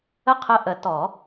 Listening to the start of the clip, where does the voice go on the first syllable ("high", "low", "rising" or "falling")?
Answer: high